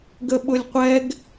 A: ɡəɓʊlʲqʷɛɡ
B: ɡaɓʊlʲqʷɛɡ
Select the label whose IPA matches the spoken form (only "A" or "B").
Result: A